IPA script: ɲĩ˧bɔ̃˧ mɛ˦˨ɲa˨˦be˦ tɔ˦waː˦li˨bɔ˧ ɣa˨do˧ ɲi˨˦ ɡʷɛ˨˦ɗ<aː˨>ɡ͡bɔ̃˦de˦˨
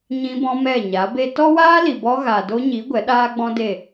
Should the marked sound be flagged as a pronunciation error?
yes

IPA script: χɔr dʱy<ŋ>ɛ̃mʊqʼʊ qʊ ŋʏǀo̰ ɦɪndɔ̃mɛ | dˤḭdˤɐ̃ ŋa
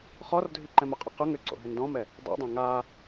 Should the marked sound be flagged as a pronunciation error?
yes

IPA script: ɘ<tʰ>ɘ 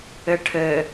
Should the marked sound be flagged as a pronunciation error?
yes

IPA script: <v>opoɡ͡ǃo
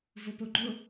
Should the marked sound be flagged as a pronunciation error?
no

